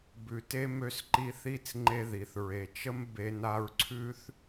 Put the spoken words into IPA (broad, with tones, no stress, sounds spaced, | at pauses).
b ʉ˩ t e˥ m ø˦ s ǃ i˦ θ i˥ t͡s ŋ͡ǃ e˦ ð i˩ θ ɹ e˩ t͡ʃ ə˥ m b e˦ n a˥ ɹ ǀʰ ʉ˥ θ